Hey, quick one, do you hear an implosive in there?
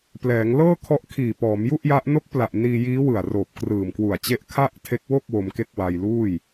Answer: no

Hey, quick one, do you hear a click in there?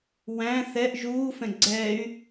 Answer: yes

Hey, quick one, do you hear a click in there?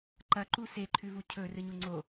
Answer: yes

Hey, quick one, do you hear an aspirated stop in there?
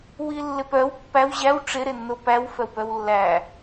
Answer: no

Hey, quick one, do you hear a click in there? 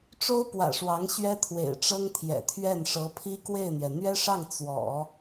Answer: no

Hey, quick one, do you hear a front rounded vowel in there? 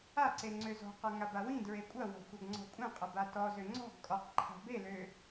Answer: yes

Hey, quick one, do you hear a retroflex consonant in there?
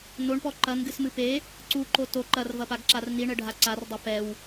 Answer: yes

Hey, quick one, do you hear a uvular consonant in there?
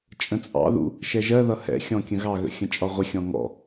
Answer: yes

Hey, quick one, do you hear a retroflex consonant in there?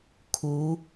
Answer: no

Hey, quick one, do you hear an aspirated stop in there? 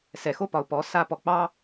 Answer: no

